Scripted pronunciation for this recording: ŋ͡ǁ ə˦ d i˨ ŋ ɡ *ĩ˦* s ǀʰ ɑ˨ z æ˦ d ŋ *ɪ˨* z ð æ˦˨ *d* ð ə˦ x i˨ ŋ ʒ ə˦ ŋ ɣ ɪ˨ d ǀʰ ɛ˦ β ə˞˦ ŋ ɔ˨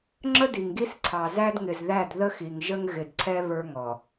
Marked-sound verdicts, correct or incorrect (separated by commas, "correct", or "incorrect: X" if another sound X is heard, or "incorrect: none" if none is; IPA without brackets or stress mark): incorrect: i˦, correct, correct